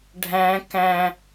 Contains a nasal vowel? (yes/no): yes